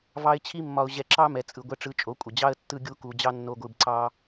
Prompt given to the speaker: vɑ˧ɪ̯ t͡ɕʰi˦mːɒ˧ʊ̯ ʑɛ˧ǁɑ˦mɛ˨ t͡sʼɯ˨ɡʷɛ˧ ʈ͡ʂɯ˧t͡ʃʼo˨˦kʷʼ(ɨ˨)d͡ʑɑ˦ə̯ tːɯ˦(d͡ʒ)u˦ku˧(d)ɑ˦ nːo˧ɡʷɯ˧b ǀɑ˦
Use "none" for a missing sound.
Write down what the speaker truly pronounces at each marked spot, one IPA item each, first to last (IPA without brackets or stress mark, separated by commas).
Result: ə˨, ɡʲ, d͡ʑ